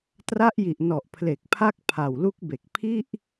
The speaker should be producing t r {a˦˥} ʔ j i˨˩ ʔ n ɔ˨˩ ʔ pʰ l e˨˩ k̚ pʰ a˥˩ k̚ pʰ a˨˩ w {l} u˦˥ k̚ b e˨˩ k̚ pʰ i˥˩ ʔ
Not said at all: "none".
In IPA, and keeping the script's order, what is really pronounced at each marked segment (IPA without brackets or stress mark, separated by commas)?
a˦˥, l